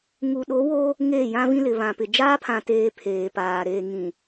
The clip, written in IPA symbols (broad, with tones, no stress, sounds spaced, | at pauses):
ŋ u˨ ɗ o˨˦ w o˦ | ŋ eː˦˨ j ã˦ v ĩ˦ l ɪ˨ β ã˨ p ɪ˨ d͡ʒ aː˦ pʰ ã˨ t eː˨ pʰ eː˨ p aː˨ ɾ eː˨ ŋ ĩ˨